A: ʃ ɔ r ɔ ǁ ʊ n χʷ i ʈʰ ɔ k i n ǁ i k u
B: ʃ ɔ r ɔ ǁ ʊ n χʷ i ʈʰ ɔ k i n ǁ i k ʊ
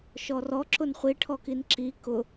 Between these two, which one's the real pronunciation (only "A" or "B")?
B